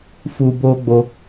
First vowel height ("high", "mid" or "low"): high